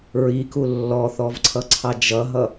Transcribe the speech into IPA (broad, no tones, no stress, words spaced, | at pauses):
ɹiku lːɔθɔvǀʰʌǀʰɑ d͡ʒʌɦʌ